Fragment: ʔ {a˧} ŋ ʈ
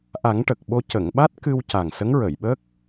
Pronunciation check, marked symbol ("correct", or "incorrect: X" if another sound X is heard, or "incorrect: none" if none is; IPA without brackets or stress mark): incorrect: a˨˩˦